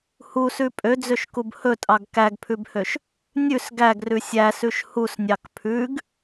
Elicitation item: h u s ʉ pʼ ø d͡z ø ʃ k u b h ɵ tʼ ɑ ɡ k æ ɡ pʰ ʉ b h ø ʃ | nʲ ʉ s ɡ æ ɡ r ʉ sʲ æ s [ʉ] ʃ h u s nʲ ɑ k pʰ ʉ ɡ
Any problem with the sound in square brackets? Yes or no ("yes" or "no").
no